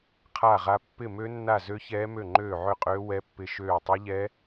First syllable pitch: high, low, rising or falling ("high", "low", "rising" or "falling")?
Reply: falling